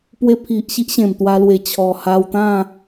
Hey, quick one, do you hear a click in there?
no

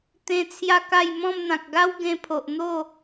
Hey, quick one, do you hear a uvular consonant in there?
no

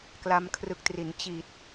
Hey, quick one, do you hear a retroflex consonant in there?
no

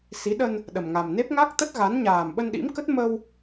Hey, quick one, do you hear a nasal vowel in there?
no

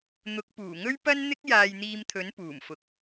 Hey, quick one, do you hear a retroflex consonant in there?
no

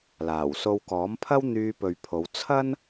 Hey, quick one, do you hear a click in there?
no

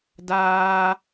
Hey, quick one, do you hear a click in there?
no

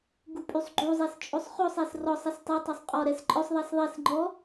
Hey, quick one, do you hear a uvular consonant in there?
yes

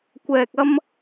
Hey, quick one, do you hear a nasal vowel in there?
no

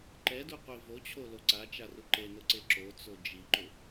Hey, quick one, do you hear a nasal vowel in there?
no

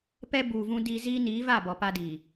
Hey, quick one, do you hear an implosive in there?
no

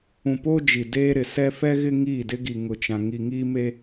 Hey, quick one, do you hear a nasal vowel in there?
yes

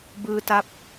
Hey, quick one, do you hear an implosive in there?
no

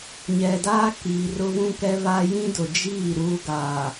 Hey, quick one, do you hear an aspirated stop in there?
no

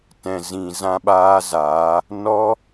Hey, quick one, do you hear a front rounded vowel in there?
no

